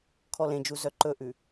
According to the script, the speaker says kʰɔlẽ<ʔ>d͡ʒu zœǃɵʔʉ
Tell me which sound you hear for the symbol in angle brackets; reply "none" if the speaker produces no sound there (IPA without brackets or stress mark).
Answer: none